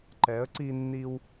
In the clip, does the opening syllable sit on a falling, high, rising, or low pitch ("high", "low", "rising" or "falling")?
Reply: rising